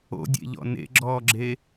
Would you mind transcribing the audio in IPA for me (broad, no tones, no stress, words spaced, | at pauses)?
o̰dʲḛʎɔ̰ nḛɡ͡ǁɔːɡ͡ǁe